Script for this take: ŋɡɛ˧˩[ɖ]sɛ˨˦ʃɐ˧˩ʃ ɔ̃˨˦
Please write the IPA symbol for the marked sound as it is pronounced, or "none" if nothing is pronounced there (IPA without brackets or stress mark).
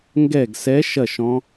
ɡ